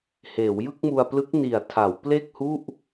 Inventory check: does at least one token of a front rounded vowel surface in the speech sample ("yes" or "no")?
no